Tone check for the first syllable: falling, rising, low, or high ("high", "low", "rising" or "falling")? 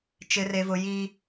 high